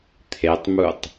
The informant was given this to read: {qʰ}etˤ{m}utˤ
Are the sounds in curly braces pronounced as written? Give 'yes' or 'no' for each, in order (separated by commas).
no, yes